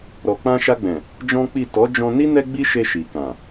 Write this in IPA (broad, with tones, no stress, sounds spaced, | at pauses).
ɾ ɔ˨ k͡p ã˧ ʃ a˧ ɡ͡b ɛ̃˨ | d͡ʒ ɔ̃˦ k͡p i˦˨ t ɔ˨˦ d͡ʒ ɔ̃˧ n i˦ n ɛ˦ ɡ͡b i˦ ʃ e˧ ʃ i˨ k ã˨